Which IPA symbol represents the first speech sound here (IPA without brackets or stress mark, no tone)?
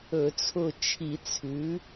ɵ